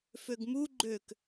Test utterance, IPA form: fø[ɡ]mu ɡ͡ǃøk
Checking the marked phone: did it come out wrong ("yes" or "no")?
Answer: no